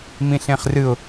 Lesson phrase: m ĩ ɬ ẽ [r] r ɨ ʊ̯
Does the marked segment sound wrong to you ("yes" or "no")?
yes